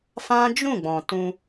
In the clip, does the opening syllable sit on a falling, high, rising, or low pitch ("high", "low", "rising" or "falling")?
high